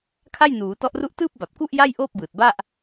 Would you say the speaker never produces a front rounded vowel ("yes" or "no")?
yes